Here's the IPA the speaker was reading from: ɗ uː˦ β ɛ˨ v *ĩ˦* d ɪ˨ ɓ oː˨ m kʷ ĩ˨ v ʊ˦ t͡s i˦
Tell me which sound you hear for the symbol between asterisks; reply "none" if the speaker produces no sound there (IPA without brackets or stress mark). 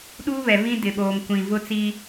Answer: ĩ˦